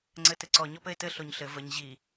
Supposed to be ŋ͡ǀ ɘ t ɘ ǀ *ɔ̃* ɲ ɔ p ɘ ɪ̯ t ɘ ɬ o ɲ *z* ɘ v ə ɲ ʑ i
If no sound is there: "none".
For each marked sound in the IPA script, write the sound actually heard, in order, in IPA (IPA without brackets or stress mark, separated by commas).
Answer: ɔ, ɬ